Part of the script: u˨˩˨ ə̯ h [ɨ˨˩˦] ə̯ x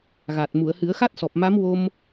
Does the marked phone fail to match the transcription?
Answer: no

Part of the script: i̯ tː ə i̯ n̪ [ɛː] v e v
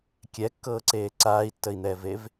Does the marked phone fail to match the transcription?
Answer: no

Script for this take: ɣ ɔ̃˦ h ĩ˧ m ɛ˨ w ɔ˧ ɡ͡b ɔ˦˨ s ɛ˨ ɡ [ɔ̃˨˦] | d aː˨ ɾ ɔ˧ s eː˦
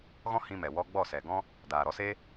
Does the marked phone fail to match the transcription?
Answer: yes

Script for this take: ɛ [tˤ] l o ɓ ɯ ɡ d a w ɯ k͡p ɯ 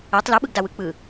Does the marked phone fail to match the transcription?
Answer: no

